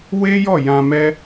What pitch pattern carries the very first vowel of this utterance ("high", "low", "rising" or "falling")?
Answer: high